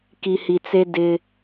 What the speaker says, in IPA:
ki˨hi˨t͡se˦ dɪ˦

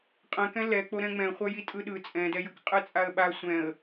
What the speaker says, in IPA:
qʼɛ̃kɛ̃ lɛ k͡poɾɛ̃ŋ͡mɛ̃ χʷʌjitʼɯɗɯ t͡sʼɛ̃dɛjɯk qʼɯt͡sʼaə̯ɓa sʷɛ̃ə̯

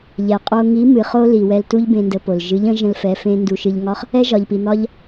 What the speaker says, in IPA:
ʎɛ˨qʼo˧ ŋi˨˦ mɨ˨χo˧ li˨wɛ˧ltu˦ʎ bẽ˧ndə˧po˨l ʒɨ˨˦ʎə̃˨˦ʒə̃˧l fɛ˨˦fẽ˦ ndu˧ʃɨ˧ʎŋɒ˦χ | ɛ˦ʒɒ˨ʎpi˨ n̪ɒ˧ʎ

